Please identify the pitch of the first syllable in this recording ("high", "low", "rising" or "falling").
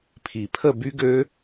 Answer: low